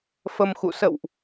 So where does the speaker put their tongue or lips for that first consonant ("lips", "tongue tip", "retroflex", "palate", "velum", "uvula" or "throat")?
lips